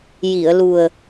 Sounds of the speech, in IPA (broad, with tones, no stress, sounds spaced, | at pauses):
j i˨˩˨ ə̯ l u˨˩ ə̯